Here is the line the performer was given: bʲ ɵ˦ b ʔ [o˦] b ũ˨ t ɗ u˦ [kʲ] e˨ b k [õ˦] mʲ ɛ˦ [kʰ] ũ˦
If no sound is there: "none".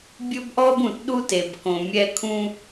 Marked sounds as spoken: ɔ˦, t, õ˨, kʰ

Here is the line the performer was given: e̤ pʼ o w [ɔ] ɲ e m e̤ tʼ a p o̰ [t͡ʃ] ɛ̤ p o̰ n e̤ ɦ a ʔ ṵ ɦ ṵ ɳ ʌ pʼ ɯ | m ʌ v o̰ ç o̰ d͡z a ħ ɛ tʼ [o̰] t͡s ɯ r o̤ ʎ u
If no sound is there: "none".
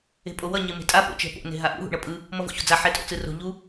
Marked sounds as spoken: ʌ, t͡ʃ, o̰

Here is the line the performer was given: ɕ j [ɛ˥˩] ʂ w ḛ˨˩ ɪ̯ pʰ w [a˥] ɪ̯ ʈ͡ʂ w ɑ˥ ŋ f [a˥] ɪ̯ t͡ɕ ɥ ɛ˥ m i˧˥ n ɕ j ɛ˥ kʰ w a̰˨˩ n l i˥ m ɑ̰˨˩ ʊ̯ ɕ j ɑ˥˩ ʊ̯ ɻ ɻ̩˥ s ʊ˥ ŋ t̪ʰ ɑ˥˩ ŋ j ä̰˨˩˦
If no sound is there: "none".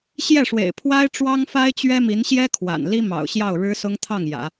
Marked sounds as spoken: ɛ˥˩, a˥, a˥

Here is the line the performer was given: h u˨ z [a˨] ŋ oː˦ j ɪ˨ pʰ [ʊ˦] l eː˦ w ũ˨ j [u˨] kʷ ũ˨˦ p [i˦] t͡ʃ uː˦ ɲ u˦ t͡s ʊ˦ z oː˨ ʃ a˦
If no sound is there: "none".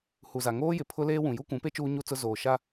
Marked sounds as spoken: a˨, ʊ˦, u˦, e˦

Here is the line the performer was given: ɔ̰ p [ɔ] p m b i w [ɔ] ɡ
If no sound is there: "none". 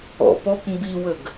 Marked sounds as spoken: ɔ, ə

